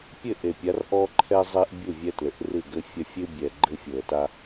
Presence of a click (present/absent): present